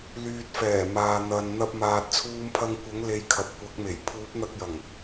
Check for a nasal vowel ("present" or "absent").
absent